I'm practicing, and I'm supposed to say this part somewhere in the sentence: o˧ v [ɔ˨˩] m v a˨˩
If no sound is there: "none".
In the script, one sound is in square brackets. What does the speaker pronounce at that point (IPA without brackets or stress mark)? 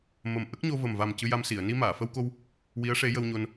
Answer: ə˨˩